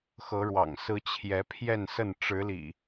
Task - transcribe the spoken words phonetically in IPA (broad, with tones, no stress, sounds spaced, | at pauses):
x ɤ˨˦ ɻ w ɑ̰˨˩ ŋ s ɹ̩˨˦ t͡ɕʰ j ɛ˨˦ pʰ j ɛ˥˨ n s ə˥˨ n ʈ͡ʂ ɻ̩˨˦ l ḭ˨˩